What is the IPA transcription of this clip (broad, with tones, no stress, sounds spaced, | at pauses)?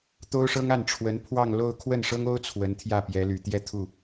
t̪ o˥ ʊ̯ ʂ ɤ˥ ŋ a˥˩ n ʈ͡ʂʰ w ə˧˥ n pʰ w ɑ˥˧ ŋ l o˥˧ ʊ̯ kʰ w ə˥˩ n ʂ ɤ˥ ŋ o˥ ʊ̯ t͡sʰ w ə˧˥ n t̪ʰ j ä˥˩ p j ɛ˧˥ l y˨˩ t̪ j ɛ˥˧ t̪ʰ u˥˩